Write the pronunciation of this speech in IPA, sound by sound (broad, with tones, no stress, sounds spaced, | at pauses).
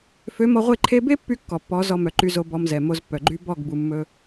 f ø˨˦ m ɔ˧ ʁʷ e˦˨ ǃʰ e˧ b e˦ pː y˦ kː ɔ˨ pː ɔ˨˦ z ɔ˧ m œ˨ ǃ y˧ z o˧ b ɔ˧ m z ɛ˨ m o˧ z pː œ˨ ɡ͡ǃ y˦ b ɔ˦˨ ɡ b u˨ mː ɵ˧